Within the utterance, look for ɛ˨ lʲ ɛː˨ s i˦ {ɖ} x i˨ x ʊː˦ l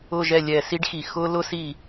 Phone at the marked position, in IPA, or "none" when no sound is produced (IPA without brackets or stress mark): ɖ